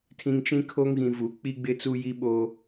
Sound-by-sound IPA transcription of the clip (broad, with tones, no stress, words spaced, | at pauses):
tʰĩ˨ŋt͡ʃĩ˦kʰo˦ŋɣĩ˨ vu˨ k͡pi˦ɡ͡bɪ˦t͡su˦ ji˦ɓoː˦